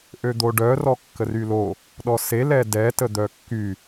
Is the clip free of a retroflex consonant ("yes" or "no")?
no